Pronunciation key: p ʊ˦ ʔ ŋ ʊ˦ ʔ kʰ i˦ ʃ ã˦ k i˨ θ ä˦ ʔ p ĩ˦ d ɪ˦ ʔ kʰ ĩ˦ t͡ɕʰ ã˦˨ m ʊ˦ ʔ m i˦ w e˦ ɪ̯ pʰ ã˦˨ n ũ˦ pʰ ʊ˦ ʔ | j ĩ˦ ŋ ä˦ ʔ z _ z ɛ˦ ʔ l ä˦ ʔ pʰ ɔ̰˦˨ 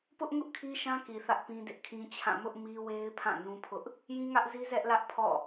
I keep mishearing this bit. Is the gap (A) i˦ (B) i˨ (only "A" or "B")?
A